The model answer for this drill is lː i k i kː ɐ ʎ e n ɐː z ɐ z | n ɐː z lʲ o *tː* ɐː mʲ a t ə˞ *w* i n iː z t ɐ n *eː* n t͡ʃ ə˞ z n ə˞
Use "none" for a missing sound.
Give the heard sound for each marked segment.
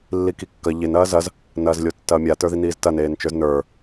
tː, ð, eː

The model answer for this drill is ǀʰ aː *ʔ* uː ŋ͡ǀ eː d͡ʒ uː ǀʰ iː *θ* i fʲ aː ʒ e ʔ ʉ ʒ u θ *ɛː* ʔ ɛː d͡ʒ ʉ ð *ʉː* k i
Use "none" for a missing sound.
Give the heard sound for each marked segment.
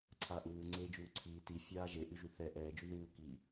ʔ, t, ɛ, uː

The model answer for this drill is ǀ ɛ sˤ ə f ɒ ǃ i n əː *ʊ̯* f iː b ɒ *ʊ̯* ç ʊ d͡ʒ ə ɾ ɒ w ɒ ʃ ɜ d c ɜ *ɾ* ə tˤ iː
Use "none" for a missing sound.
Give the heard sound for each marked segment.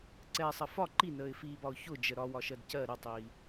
ɪ̯, ʊ̯, ɾ

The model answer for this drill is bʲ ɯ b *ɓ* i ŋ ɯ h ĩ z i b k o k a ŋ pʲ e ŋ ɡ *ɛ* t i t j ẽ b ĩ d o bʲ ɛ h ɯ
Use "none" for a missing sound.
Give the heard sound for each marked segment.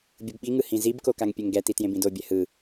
ɓ, ɛ

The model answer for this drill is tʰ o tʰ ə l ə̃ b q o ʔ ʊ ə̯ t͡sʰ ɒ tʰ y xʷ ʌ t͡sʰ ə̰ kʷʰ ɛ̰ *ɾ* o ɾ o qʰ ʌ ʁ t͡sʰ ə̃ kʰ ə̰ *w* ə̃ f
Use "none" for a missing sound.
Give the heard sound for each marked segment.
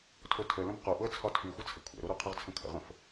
ɾ, ʁ

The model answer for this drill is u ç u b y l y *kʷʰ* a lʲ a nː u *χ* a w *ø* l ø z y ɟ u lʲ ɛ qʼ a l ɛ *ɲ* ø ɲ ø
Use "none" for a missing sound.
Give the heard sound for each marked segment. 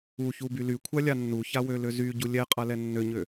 kʷʰ, ç, ø, nː

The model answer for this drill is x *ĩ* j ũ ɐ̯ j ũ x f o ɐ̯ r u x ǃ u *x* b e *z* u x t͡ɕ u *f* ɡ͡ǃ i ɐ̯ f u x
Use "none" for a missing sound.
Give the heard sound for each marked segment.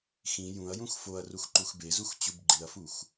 ĩ, x, z, b

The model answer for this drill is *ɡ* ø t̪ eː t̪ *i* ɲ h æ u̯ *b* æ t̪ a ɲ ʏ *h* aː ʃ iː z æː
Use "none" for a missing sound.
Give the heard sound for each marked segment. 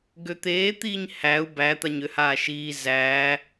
ɡ, iː, b, h

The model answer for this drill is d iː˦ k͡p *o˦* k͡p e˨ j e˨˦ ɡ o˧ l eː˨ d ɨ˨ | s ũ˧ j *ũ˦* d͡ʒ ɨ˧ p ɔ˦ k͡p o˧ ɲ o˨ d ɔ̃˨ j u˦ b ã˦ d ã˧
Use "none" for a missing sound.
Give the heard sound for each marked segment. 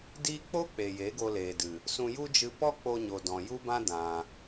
o˦, u˦

